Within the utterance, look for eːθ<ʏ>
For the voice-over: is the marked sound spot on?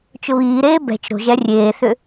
yes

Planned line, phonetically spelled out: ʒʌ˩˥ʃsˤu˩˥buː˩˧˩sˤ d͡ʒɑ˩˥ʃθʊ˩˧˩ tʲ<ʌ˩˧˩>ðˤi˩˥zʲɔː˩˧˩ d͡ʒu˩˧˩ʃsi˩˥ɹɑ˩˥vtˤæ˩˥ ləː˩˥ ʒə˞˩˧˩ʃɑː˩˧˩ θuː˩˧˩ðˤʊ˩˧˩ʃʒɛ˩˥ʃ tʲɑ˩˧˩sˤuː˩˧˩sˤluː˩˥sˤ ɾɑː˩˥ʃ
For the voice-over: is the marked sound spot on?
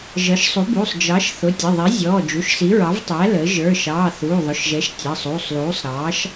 no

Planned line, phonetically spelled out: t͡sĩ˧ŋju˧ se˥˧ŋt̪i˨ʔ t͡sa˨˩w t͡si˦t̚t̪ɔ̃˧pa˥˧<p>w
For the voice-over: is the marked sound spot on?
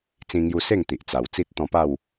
no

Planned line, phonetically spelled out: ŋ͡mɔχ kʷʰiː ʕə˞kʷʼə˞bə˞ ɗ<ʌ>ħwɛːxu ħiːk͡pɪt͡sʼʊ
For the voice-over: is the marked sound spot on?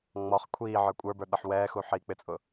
yes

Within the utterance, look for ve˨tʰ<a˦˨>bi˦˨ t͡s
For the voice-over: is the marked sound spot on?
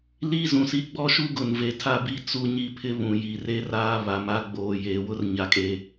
yes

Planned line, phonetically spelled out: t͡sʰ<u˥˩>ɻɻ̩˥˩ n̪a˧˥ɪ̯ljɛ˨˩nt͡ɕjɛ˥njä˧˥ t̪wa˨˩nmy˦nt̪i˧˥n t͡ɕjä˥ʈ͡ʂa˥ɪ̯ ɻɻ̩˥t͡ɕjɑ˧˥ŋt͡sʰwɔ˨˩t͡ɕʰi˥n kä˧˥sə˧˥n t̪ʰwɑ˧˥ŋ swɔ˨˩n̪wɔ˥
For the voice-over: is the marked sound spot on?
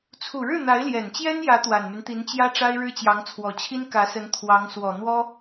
no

